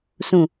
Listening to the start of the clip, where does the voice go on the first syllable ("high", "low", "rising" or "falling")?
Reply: low